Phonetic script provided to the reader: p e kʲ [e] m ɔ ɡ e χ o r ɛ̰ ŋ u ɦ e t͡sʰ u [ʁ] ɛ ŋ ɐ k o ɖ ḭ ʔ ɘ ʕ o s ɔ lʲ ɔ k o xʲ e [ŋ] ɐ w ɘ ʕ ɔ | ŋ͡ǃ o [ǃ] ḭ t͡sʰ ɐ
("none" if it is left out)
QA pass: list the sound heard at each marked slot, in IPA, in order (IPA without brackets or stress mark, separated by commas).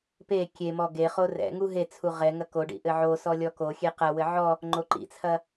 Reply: e, ʁ, q, ǃ